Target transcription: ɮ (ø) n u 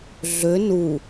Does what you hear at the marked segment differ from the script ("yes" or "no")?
no